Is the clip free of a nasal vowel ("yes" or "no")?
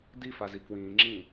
no